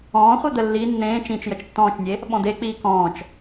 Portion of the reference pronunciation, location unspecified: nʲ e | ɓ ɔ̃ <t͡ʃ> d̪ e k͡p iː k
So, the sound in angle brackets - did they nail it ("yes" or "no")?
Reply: no